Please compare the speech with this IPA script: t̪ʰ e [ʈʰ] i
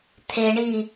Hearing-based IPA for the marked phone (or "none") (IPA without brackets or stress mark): ɳ